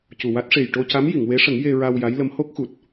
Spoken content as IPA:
c u˨˩ w a˦˥ t̚ ʂ e˨˩ j ʈ o˧ c a˧˥ m j i˨˩˨ ŋ w e˧˥ ʂ ə˨˩˦ ŋ j e˧ ɹ a˧ w j a˧˥ j l ə˧˥ m h o˦˥ k̚ x u˨˩ t̚

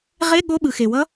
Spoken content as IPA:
ʁ e˧˥˧ ɠ o˧˥˧ ɓ ɯ˩ x e˩ w ʌ˦˥

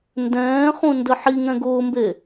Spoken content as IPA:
n d ɛ̃ː χ ũ n d ə ħ i ŋ ɛ̃ ɡ ʊː m b e

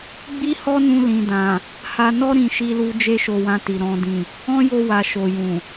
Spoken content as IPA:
ɡ͡b i˦ h ɔ˦ n ũ˧ l ĩ˨ d ã˨ | h a˧ n ɔ˦ ɾ ĩ˧ ʃ i˧ l u˧ d͡ʒ e˦ ʃ o˧ w ã˧ t i˨ ɾ ɔ̃˨ d ĩ˨ | ɔ̃˦ j o˧ w a˨ ʃ o˨ j ũ˨

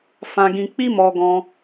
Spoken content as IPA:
f ã˨ ɡ ĩ˨ k͡p i˧ m ɔ˨ ɡ ɔ̃˧

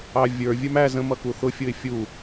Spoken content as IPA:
ɑ vʲ ə˞ vʲ ə˞ m æ z ə̃ m ʌ k u θ ʊ fʲ ʊ ɪ̯ fʲ u

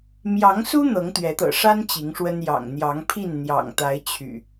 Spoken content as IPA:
m j ɑ˨˦ ŋ s u˦ n̪ ɤ˨˦ ŋ t̪ ɥ ɛ˨˦ t̪ ɤ̰˨˩ ʂ a˦ n t͡ɕ i˨˦ ŋ ʂ w ə˦ n j ɑ̰˨˩ ŋ n̪ j ɑ˨˦ ŋ pʰ i˥˨ n n̪ j ɑ̰˨˩ ŋ t̪ a˨˦ ɪ̯ t͡ɕʰ y̰˨˩

